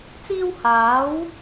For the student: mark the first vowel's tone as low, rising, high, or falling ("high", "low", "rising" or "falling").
high